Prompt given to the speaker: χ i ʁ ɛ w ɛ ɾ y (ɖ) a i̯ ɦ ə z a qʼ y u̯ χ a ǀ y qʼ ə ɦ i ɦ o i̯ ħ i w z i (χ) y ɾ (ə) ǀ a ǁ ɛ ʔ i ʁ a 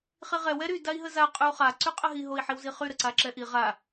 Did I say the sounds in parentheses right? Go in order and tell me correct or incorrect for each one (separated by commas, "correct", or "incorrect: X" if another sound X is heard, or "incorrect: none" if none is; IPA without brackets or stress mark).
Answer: incorrect: d, correct, correct